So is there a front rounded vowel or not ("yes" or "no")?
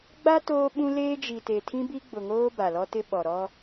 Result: no